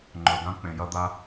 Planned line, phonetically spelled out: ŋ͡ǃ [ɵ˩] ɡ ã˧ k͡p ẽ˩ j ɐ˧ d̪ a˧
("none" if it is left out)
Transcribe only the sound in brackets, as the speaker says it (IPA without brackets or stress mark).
ɵ˩